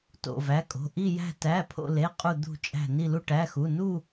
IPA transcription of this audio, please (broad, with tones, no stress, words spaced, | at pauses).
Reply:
to̰˥˧væ˧˥˧kʼo̤˧˥˧ ʔi˥˧jæ̤˥˧tæ˧˥˧pʰo̰˥˧ le˧˥˧qʼu˥˧ d̪ṳ˥˧t͡ʃʼæ̤˥˧ ni˥˧lu˥˧ʈæ˧˥˧xu˧˥˧ nu˥˧